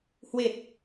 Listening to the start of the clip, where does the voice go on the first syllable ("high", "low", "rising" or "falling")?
low